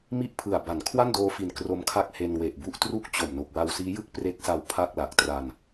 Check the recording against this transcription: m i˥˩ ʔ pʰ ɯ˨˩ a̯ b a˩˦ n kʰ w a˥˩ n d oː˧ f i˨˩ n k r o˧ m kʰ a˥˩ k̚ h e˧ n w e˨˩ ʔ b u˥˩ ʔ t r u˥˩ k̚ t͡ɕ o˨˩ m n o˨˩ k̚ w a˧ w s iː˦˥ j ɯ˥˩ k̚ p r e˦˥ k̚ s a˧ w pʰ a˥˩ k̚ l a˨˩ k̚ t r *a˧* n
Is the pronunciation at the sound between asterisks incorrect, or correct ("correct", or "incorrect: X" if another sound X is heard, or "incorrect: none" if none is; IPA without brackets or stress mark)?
correct